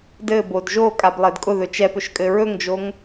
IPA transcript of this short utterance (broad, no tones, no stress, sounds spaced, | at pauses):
d ɘ b o d ʒ o kʼ a b lˠ ɘ d kʼ ʊ ð ɵ t͡ʃ ɛ p ɵ ʃ kʼ ɘ ɹ ɵ ŋ d͡ʒ o ŋ